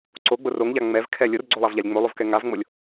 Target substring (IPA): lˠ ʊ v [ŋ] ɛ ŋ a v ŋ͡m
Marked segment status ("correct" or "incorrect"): incorrect